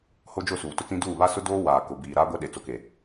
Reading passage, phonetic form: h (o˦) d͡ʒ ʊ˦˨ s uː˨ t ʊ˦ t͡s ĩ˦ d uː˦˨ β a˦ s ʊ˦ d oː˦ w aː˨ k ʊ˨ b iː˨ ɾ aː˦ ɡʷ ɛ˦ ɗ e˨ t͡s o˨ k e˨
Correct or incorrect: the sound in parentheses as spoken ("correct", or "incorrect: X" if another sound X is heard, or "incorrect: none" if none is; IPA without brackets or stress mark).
correct